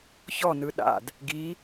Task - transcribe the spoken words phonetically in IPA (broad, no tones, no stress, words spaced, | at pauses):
çɔnɯ ɗa̰d | ɡi